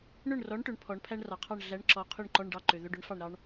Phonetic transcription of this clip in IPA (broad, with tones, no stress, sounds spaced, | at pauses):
ɳ ɵ˥˨ ɳ r ɔ˨˥ ɳ ʈ ɵ˩˧ ɳ pʰ ɔ˩˧ ɳ pʰ æ˥ ɳ r ɑ˩ qʰ ɑ˥˨ ɳ ɮ æ˨˥ ɳ ǁ ɔ˩˧ qʰ y˥˨ ɳ ǃ ɔ˧˥˧ ɳ ɖ ɑ˥˨ ǃ ø˩ ð ɵ˧˥˧ ɖ ɵ˨˥ ɳ f ɑ˥˨ ɳ ɾ ɑ˥ ɳ